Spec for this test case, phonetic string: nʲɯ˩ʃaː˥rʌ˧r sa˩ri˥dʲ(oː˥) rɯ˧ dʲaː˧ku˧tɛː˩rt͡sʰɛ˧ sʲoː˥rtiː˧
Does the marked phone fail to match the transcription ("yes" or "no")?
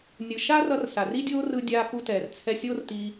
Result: no